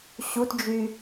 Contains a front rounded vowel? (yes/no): yes